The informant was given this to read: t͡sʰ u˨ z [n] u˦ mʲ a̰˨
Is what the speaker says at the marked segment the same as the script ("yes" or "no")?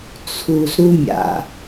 no